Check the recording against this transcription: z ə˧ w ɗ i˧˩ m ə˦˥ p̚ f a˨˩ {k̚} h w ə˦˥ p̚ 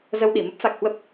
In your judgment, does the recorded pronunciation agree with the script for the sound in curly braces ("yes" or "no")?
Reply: yes